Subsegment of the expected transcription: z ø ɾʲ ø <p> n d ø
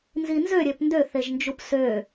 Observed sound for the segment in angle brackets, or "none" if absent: p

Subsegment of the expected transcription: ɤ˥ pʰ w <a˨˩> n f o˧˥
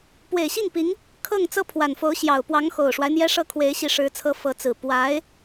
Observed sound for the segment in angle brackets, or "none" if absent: a˨˩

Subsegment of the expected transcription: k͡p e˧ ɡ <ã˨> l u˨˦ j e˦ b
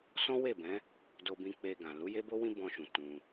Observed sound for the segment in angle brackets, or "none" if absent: ã˨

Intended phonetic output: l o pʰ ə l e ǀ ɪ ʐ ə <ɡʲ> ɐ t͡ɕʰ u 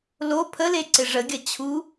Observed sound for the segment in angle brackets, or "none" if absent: ɡʲ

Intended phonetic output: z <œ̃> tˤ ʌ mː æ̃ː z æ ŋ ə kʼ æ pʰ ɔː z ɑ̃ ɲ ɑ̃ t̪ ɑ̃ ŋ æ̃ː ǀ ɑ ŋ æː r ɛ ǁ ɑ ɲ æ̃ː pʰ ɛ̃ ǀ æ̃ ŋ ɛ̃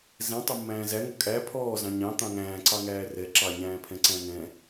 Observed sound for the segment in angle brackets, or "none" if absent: ɛ̃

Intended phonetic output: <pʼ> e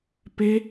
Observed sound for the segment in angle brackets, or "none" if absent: p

